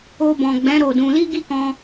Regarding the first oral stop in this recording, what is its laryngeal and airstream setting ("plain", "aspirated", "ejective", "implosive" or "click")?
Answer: plain